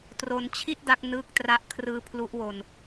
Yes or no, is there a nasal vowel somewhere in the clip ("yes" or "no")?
no